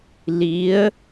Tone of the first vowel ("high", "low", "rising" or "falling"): rising